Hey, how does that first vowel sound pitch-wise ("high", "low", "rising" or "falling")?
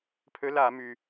rising